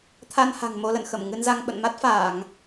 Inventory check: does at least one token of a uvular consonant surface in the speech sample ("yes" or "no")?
no